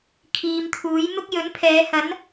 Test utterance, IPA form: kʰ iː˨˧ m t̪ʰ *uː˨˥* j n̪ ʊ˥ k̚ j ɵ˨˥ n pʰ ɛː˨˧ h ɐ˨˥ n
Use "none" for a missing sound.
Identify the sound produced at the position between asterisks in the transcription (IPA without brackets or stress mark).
uː˨˥